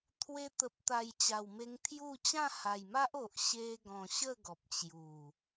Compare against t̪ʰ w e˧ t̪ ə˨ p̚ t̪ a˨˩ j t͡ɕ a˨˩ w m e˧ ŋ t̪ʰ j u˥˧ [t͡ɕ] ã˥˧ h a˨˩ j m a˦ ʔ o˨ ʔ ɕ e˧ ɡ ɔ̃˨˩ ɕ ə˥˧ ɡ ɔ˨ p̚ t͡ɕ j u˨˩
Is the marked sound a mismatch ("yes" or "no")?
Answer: no